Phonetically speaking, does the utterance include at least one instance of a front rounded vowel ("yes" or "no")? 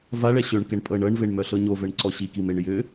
yes